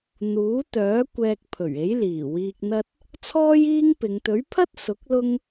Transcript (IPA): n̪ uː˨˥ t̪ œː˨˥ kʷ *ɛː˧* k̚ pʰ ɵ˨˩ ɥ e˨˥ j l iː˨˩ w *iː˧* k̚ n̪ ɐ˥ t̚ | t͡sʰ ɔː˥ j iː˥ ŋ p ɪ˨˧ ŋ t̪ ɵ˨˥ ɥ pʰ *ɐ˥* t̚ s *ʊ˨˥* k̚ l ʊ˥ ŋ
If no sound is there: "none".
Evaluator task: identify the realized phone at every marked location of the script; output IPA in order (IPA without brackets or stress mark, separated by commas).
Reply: ɛː˧, iː˧, ɐ˥, ʊ˨˥